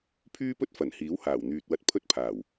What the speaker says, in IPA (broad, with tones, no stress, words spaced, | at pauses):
pʰyː˥pɵ˥t̚ fɐ˨˩nhiː˨˥whaː˨˩w n̪yː˨t̚wɐ˧t̚ pʰɵ˥t̚pʰaː˨˩w